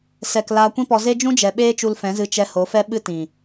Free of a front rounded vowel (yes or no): yes